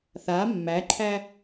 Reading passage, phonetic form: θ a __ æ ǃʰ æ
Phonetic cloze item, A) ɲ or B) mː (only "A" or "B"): B